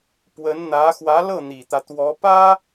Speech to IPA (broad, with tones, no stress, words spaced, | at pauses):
pwə˧˥nn̪ä˧˥ xwä˧˥lɤ˥˩ n̪i˨˩t̪ä˦t̪wɔ˧˥pä˥